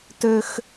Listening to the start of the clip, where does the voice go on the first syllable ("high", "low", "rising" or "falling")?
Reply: high